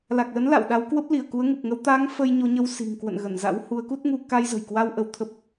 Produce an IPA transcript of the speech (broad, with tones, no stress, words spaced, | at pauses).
la˨˩k̚lə˨˦n la̰˧˨wɗa˨˦w kwə˦˥p̚li˧˩ə̯ku˨˦ə̯ ŋu˨˩p̚ŋə˧w t̪a˨˦ŋ fə˧jɲo˨˦ɲə˧w si̤˨˩ŋkwə̰˧˨n ɣə˧˩nza̰˧˥whu˨˦ə̯ ku˦˥t̚ŋu˧ ka˧jzə̤˨˩jkwa˧w ʔə˧wt̪ʰə˦˥p̚